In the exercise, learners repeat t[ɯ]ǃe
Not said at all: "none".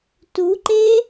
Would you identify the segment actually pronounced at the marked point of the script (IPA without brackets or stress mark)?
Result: u